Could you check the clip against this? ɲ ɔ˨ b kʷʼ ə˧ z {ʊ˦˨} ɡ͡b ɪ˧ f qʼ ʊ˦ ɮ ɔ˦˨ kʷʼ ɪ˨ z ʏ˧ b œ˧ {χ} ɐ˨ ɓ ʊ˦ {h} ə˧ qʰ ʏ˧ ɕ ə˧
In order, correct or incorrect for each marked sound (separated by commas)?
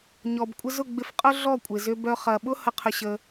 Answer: correct, correct, correct